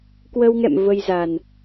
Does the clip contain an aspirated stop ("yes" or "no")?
no